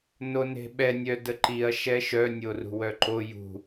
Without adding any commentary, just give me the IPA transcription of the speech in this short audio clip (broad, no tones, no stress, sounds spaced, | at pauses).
n o n e̤ ɓ ɛ nʲ œ d ə ǃ i ɐ̯ ʃ ɛ ʃ œ nʲ o r ṳ w œ ǃ o j ṳ